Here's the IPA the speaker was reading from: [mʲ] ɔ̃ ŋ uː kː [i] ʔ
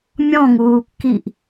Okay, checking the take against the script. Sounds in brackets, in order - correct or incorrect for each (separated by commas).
correct, correct